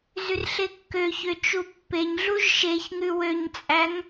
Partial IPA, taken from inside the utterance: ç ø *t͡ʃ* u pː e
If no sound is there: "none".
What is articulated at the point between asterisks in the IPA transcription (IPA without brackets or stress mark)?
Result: t͡ʃ